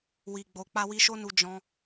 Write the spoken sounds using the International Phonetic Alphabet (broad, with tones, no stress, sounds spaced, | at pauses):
w i˨ ɡ͡b o˨ k͡p a˧ w i˧ ʃ o˦ n u˧ d͡ʒ ɔ̃˦